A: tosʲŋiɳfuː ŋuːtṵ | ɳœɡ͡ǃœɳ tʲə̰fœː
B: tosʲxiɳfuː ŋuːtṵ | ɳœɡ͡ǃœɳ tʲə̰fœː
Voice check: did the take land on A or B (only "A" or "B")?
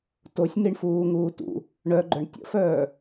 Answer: A